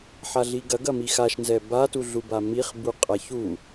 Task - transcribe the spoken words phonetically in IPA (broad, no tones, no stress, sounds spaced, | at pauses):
ħ a ɮ i ɡ ɐ ɡ ɐ m i x a ʃ n z ɛ b a t u ɮ u b a m i χ b u qʼ a ç u